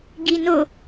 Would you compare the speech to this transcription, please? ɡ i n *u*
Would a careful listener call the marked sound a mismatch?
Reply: yes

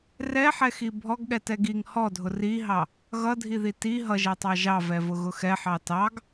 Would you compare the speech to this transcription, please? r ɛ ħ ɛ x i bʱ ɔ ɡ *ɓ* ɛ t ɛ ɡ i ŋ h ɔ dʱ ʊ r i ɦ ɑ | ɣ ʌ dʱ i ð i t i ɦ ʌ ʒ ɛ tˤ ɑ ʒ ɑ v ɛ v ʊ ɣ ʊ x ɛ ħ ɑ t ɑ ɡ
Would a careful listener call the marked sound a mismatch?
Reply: yes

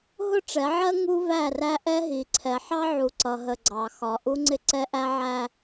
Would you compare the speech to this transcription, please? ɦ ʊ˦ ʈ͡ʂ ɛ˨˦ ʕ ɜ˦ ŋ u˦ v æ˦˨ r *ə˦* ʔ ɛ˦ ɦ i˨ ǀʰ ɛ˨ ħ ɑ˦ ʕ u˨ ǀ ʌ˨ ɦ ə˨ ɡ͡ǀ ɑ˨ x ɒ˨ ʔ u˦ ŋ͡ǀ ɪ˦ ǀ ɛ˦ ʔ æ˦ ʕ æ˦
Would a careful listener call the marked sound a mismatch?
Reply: yes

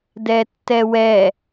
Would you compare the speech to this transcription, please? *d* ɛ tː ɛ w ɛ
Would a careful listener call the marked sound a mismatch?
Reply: no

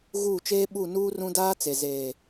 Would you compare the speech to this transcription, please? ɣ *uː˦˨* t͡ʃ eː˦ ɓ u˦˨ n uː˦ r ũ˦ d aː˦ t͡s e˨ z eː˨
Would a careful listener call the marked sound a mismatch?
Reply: no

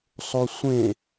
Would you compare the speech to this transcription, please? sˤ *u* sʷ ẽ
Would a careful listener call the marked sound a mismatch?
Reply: yes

